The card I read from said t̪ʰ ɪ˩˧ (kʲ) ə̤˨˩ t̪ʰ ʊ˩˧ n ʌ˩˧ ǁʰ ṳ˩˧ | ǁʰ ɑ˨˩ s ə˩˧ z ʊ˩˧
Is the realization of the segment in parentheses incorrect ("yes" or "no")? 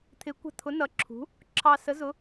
yes